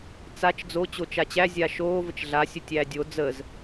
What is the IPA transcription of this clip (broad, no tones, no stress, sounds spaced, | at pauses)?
t͡s a t͡ʃ d͡z o t͡ɕ o t͡ʃ a t͡ɕ æ zʲ a ʃ oː v ə t͡ʃ ɮ a sʲ ə tʲ æː dʲ o d͡z ə z